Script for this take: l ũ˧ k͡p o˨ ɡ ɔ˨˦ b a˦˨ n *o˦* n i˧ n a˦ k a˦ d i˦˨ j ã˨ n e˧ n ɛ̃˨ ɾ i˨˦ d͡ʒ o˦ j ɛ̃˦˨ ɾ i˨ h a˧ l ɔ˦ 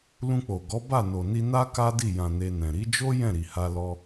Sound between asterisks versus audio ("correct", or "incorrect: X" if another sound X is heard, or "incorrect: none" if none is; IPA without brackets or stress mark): incorrect: o˨